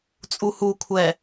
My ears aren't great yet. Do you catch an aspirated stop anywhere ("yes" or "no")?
yes